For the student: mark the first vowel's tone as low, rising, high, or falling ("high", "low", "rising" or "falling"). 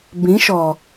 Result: rising